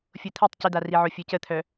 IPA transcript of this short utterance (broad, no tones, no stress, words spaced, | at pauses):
fʲot̪ʰitˤ cɪd̪ariʕo fʲocət̪ʰœ